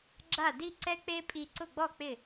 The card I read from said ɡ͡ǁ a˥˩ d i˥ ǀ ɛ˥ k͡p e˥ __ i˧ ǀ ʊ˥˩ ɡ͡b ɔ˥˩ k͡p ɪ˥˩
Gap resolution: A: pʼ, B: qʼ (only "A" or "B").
A